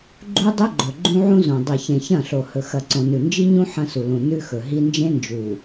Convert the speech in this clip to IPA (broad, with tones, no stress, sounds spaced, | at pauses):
ɡ͡ǃ u˦ dˤ ɵ˦ ɡ͡ǃ ɵ˨ ɡ͡ǃ ũ˦ ʕ ũ˦ z õ˨ dˤ i˨ ç ẽ˨ ç ɐ̃˦˨ ɬ o˨ h ɵ˨ x ɐ˨ ǀ õ˨ n ʉ˨ n d͡ʒ i˦ ɲ ũ˦ ħ ɐ̃˦ s u˨ l ũ˨ n ʉ˦ x ɵ˨ ɦ i˦ n d͡ʒ ẽ˦ n d͡ʒ u˨